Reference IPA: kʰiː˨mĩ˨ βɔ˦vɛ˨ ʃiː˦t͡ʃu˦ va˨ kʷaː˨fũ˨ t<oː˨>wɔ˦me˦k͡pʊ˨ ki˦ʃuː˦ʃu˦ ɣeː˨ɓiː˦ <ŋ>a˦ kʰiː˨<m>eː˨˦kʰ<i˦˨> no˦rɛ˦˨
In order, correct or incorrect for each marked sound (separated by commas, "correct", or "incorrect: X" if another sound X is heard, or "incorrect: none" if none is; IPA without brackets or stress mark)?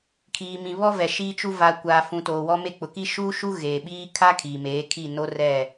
correct, incorrect: kʰ, correct, correct